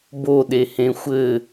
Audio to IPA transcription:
b o ɗ e h ẽ xʷ ɘ

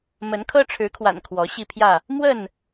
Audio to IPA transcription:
m ə˨˦ n kʰ ɤ˦ ʈ͡ʂʰ ɻ̩˨˦ kʰ w a̰˨˩ n kʰ w ɔ˨˦ ɕ i˥˨ pʰ j ä˥˨ | m w ə˥˨ n

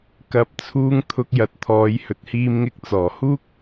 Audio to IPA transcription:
k ɐ˨˥ p̚ t͡sʰ uː˧ ŋ t̪ʰ ʊ˧ k̚ j ɐ˨˥ t̚ t̪ʰ ɔː˨˧ j h ɵ˨ t̚ h iː˧ m ŋ ɪ˧ k̚ t͡s ɔː˨˩ h uː˥ k̚

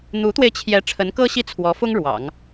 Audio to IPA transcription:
n̪ u˧˥ t̪ w e˧ ɪ̯ t͡ɕʰ j ɛ˧˥ ʈ͡ʂʰ ə˧˥ n k ɤ˥ ɕ i˥˩ t͡sʰ w ɔ˧˥ f ʊ˥ ŋ ɻ w ɑ̰˨˩˦ ŋ

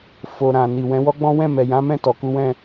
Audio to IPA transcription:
f o˨ ɾ ã˨ n i˨ w ɛ̃˨˦ w ɔ˦ ɡ͡b ɔ̃˦ w ɛ̃˦˨ m ɛ˨ j ã˨˦ m ɛ̃˦˨ t ɔ˨ k u˨˦ w ɛ̃˦˨

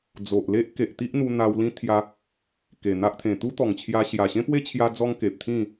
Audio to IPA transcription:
d͡z o˨ ʔ l e˦ ʔ k e˨ ʔ t̪ i˦ ʔ n̪ u˧ n̪ a˧ w l ĩ˦ t̪ʰ j a˧ | k e˨˩ n̪ a˦ ʔ t̪ʰ ẽ˨˩ t̪ u˦ t̪ ɔ˨˩ ŋ t͡ɕʰ j a˧ ɕ j a˨˩ ɕ ẽ˦ p w e˦ t͡ɕʰ j a˧ d͡z ɔ˦ ŋ k e˨ p̚ t̪ʰ ĩ˥˧

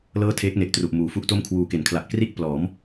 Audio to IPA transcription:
l ɤː˥˩ tʰ eː˦˥ k̚ n e˨˩ ʔ t r u˨˩ ʔ m uː˨˩ f u˥˩ ʔ t o˥˩ m kʰ w uː˨˩ k e˩˦ n kʰ l a˨˩ ʔ k r i˥˩ ʔ p l ɔː˩˦ m

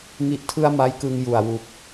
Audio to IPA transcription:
ŋ i˦˥ ʔ tʰ ɯ˥˩ a̯ m a˦˥ j k ɯ˧ ŋ j u˨˩ a̯ w u˨˩ k̚

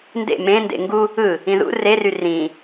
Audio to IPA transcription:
n d ḛ m ẽ n d ḛ ŋ ɡ u | ɯ | ĩ ð ṵ r e r y r ĩ

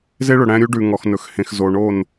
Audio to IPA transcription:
z e˦ ɭ ɵ˨ ɽ æ̃˦ ɾʲ u˦ ɖ ʉ˨ ŋ ɔ˨ x n ɵ˨ x h ẽ˨ x z o˨ ɳ o˦˨ n

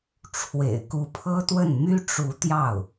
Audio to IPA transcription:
ʈ͡ʂʰ w ḛ˨˩ ɪ̯ k u˧˥ pʰ ɤ˥ t̪ w ə˥˩ n m y˥ ʈ͡ʂ u˧˥ t̪ j ɑ˥˩ ʊ̯

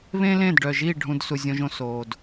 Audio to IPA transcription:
β ẽ˦ l ẽ˦˨ d ɖ œ˨ ʒ i˦˨ ɖʱ ũ˦ d s u˧ zʲ õ˦ ʒ õ˦ s oː˨ d

